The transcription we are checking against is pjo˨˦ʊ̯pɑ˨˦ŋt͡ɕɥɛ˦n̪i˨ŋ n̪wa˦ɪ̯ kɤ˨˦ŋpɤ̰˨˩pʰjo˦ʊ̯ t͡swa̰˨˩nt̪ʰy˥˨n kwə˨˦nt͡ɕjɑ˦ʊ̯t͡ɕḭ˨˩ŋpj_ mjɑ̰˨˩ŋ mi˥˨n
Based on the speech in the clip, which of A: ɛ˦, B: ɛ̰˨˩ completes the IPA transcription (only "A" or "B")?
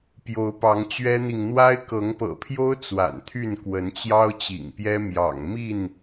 A